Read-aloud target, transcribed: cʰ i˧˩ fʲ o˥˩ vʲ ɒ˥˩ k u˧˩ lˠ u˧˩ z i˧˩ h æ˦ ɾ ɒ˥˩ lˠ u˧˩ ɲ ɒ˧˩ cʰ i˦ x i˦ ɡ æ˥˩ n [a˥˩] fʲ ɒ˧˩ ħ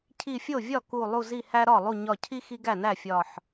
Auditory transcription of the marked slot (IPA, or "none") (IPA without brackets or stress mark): æ˥˩